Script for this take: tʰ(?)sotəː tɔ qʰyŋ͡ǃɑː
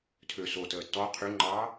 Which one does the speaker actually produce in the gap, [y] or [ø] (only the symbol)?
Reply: ø